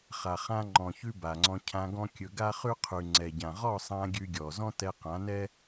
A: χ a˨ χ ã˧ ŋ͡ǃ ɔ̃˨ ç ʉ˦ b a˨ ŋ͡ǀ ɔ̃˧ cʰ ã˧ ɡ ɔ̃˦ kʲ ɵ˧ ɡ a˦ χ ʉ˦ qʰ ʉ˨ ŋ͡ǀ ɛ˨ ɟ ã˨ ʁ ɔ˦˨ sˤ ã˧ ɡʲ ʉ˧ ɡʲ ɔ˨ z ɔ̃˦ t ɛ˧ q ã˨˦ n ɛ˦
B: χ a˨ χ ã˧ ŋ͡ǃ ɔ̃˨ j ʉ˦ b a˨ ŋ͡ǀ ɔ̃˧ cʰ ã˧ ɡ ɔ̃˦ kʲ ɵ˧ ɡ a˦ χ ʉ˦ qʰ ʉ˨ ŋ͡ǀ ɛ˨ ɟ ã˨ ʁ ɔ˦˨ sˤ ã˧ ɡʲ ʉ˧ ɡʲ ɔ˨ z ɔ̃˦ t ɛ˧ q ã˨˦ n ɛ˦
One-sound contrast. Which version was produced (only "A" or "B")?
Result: A